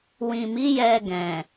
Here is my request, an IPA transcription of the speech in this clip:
w ĩ˨ m i˨˦ j ɛ˧ ɡ ɛ̃˨

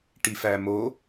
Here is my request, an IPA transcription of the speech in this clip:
ʈ i f æ m o

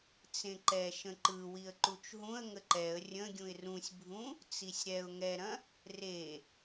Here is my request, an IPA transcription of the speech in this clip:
t͡s ẽ ǃ ɛ ʃ ə̃ ǃ ɯ w i ə̯ ǃ u t͡ʃ ɦ ũ ə̯ ŋ ə ǃ ɛ ə̯ rʲ ə̃ ɡʲ ũ ɪ̯ r ũ sʲ bʱ ũ | t͡s i sʲ ɾ ɛ ʊ̯ ŋ ɛ ɾ ɐ̃ | r e

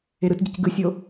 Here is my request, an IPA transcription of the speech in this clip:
e ɾ ɯ t ɟ ɯ c ɡ ɯ sʲ o

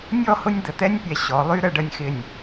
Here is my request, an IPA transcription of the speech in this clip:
nʲ ɔ˥˧ h ʊ˥ nʲ d̪ ə˧ t̪ ɛ˥ nʲ pʲ ɛ˧ ɕ ɔ˩˧ lˠ y˧ ɾ ə˧ ɖ ə˧ nʲ x ɪ˧˩ nʲ

